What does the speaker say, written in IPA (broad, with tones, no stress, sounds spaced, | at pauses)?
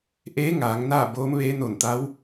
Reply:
ʔ eː˧˥ ŋ aː˩˧ ŋ n aː˥˨ b oː˧˥ m ʋ eː˧˥ n o˧˩ n t̪ a˧˥ w